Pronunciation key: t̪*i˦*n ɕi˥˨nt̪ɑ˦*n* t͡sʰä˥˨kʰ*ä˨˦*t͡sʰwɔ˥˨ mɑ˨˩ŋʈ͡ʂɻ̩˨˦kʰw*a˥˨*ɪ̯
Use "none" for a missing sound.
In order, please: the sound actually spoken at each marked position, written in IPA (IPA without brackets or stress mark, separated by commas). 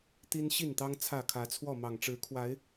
i˦, ŋ, ä˨˦, a˨˦